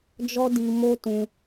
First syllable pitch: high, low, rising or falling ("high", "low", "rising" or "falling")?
high